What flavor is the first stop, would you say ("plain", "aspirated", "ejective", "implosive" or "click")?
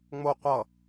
plain